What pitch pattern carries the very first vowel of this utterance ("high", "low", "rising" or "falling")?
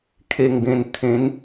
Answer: low